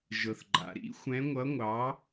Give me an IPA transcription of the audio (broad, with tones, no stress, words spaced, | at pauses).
ʒɤ˩θɡ͡ǃa̰˩ɾḭ˨˥xʷɛ̃˨˥ ŋʷʌ˨˥ŋʷɑ˨˥